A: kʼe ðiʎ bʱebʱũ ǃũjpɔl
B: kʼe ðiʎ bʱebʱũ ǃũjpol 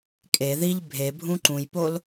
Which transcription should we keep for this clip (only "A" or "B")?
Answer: B